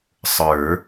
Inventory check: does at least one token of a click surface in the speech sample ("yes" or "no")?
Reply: no